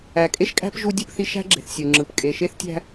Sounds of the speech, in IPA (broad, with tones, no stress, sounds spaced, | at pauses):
æ˨ kʼ e˦ ʃ kʼ æ̤˦ p ʒ u˦ dʲ ɯ˦ p θ i˦ ʃ æ̤˦ ɡ͡ǁ e̤˨ θ sʲ ɯ˨ ŋ͡ǁ ɯ˨ p kʼ e˨ ʃ e˦ θ tʲ æ̤˦